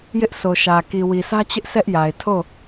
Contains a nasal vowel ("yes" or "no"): no